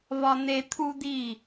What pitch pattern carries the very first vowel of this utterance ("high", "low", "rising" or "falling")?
high